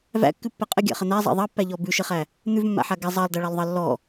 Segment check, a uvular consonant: present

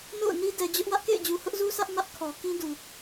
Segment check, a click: absent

